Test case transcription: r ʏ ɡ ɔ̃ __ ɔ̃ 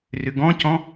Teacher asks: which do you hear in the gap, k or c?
c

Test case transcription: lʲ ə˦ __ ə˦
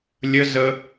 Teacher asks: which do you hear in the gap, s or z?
z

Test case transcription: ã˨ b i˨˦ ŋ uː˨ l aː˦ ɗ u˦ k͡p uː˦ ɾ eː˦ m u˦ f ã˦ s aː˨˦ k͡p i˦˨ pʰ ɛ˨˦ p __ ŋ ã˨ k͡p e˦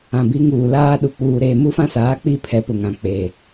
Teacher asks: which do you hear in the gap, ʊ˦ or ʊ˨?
ʊ˨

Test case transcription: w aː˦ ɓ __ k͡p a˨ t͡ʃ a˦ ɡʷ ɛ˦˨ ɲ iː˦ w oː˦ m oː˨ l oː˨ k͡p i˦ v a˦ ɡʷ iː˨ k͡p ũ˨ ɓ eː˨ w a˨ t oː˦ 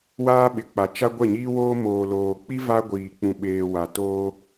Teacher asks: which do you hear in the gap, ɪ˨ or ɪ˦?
ɪ˨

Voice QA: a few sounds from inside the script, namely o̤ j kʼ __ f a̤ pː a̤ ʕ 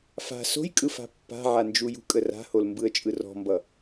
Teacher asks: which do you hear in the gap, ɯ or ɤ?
ɯ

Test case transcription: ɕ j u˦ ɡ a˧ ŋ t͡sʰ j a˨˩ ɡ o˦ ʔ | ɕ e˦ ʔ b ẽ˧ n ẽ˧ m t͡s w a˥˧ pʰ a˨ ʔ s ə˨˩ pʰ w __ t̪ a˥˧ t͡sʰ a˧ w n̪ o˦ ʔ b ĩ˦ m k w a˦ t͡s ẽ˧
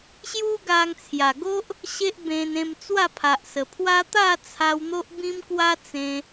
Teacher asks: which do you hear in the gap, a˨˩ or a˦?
a˦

